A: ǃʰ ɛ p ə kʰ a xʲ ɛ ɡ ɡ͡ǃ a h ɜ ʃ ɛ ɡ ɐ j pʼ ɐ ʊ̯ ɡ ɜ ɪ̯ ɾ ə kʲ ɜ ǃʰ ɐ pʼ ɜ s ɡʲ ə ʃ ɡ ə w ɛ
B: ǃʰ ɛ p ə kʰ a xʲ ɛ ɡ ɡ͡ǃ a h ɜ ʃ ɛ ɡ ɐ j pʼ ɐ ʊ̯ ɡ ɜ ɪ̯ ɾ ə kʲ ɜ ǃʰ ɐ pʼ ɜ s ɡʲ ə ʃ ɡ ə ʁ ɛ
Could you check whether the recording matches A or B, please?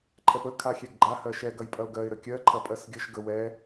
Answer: A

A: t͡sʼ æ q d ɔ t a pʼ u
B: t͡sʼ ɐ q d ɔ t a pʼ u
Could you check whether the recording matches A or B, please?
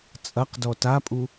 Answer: B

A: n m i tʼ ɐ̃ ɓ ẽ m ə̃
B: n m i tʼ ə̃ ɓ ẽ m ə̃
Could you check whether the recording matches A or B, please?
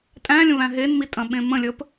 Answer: A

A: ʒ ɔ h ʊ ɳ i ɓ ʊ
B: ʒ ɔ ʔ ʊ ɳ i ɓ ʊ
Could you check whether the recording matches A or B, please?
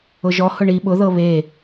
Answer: A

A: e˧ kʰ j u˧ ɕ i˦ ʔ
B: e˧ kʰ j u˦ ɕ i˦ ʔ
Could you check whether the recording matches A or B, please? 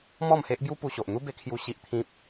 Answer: B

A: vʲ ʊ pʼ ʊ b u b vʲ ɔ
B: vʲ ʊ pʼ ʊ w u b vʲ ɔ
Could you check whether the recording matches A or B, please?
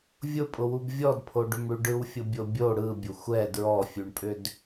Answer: B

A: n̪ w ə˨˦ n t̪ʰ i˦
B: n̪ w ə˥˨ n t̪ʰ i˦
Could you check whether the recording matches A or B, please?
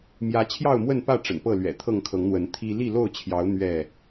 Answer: A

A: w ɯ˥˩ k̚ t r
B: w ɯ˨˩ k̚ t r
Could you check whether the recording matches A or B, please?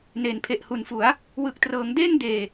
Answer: B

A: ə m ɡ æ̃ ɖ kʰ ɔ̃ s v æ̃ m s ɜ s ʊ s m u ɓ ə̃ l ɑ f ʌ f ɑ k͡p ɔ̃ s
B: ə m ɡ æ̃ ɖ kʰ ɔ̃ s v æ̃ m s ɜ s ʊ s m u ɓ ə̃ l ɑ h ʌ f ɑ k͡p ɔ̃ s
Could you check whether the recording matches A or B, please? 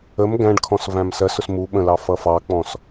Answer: A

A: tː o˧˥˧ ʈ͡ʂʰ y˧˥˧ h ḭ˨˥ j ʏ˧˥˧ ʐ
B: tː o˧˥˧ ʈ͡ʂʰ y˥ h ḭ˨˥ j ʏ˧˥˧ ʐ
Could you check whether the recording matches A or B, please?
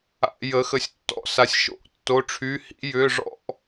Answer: A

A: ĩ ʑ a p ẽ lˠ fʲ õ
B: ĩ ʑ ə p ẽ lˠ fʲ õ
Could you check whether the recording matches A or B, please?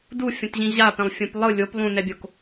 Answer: A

